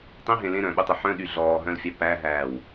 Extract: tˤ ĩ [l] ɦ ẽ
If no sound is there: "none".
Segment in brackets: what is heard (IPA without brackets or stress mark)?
none